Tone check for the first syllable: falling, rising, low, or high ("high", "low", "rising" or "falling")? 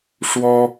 high